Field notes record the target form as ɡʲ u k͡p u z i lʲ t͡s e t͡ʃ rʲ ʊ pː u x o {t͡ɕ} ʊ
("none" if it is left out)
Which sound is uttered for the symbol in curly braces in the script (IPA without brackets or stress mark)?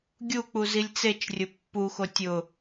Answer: tʲ